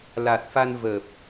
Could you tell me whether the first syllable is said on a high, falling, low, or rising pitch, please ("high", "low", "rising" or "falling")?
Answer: low